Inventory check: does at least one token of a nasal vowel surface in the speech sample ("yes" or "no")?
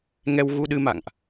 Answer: no